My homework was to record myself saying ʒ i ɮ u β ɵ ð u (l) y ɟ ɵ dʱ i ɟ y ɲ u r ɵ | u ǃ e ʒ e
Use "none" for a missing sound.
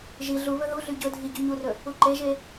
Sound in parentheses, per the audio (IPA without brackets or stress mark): ɮ